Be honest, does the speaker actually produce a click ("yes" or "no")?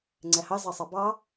yes